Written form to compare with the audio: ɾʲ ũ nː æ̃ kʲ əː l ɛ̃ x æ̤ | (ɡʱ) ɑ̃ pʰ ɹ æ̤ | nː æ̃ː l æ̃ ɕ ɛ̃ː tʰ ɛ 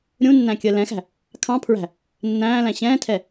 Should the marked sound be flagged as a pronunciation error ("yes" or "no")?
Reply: yes